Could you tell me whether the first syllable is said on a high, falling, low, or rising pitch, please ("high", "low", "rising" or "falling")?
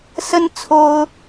high